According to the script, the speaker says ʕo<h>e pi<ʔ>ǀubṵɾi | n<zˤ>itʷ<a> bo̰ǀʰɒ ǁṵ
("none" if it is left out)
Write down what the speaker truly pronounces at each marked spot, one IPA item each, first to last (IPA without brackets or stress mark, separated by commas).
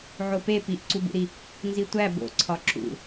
p, ʔ, z, æ